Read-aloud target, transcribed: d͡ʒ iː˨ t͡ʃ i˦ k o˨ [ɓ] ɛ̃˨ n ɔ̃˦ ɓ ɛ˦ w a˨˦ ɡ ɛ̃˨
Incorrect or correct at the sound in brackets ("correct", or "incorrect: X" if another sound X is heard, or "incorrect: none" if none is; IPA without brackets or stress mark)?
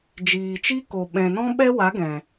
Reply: correct